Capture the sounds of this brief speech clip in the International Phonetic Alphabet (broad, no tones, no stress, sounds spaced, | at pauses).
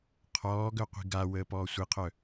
qʰ ɔː ɡ œ qʷ i̤ ɡ a w əː p ɔː sʷ i qʰ œ